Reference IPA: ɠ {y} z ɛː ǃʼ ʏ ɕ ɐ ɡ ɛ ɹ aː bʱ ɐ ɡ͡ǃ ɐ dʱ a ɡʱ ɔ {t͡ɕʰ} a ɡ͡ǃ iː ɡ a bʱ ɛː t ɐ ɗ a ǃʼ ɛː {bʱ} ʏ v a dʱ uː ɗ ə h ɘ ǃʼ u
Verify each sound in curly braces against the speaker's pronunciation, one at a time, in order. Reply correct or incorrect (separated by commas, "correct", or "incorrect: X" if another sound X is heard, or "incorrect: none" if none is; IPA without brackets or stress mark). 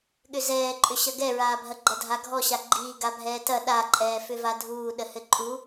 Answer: incorrect: ʏ, incorrect: ɕ, incorrect: f